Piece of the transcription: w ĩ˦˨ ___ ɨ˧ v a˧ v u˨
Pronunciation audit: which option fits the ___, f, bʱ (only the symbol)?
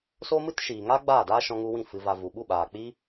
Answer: f